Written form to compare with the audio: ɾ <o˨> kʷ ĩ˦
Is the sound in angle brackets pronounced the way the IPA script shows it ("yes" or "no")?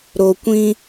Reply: yes